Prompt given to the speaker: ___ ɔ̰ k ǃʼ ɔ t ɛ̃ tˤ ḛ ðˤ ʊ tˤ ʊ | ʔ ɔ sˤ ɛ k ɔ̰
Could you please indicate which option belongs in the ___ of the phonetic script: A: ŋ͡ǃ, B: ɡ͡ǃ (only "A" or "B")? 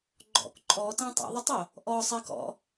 B